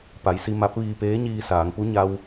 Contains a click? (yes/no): no